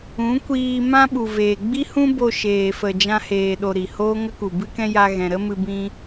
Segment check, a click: absent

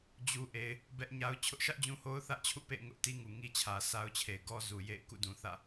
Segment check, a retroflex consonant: absent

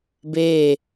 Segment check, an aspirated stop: absent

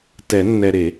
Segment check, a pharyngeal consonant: absent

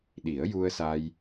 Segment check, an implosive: present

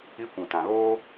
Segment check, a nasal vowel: present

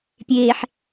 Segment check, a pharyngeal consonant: present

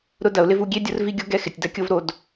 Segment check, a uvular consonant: absent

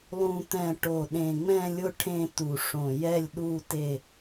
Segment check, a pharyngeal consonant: absent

